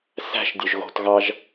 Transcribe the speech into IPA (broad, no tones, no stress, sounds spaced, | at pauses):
s æ̤ ʃ dʲ ø ʒ ɣ o̤ t ɣ ɑ ʒ